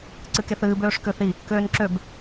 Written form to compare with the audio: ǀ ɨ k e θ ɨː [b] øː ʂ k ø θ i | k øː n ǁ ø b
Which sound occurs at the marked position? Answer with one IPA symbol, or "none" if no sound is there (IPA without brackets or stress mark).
b